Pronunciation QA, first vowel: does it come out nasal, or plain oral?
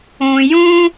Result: nasal